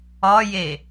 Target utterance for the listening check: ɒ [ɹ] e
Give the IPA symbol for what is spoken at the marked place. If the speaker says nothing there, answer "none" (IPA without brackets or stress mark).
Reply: j